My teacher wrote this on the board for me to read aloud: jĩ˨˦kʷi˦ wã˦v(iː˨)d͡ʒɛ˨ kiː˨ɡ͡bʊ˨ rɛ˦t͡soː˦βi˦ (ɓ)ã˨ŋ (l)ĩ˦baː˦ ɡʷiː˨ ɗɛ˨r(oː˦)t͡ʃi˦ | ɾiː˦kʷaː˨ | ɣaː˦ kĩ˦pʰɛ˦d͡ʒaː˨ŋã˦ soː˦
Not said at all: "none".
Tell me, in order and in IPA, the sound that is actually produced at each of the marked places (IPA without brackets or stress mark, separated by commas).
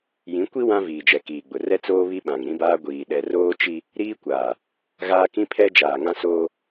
iː˨, ɓ, ɾ, oː˦